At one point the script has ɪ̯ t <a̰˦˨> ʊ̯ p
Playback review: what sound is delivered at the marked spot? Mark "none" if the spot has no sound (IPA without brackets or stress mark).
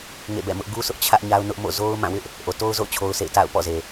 a̰˦˨